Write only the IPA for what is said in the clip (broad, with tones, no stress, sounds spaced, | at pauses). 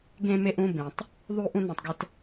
ɡ ẽ˧ m e˧ ʔ ũ˧ b ẽ˨ tˤ | ðˤ u˧ ʔ ũ˧ n ẽ˨ tˤ ɡ ɛ˧ t